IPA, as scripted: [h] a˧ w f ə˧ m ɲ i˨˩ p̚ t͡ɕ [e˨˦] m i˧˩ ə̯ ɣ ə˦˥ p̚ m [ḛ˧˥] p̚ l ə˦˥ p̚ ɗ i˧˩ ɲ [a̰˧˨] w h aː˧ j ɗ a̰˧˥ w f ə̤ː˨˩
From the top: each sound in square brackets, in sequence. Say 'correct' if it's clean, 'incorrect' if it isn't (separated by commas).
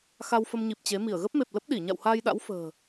incorrect, correct, incorrect, correct